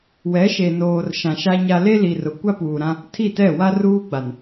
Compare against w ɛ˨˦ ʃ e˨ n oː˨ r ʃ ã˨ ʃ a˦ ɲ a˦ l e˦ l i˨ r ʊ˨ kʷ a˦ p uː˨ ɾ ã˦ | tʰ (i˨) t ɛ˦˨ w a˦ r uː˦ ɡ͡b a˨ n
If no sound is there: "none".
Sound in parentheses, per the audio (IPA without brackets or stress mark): i˦˨